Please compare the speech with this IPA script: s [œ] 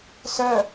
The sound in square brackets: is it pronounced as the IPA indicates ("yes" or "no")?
yes